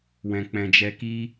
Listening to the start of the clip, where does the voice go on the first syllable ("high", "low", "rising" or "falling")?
low